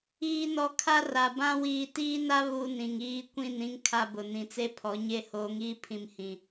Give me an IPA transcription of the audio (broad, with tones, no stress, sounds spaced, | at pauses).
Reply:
iː˨ n ɔ˨ kʰ a˦ r a˨ b ã˦ w iː˨ t iː˦ n a˦ β u˦ n ĩ˨ ŋ iː˦ kʷ ĩ˦˨ n ĩ˦ ŋ kʰ a˦ b ʊ˨ n ĩ˨ t͡s e˦ pʰ ɔ˨˦ ɲ e˦ h oː˨˦ ŋ iː˦ pʰ ĩ˨ m h ĩ˨